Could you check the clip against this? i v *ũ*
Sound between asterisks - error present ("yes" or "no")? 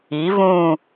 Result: no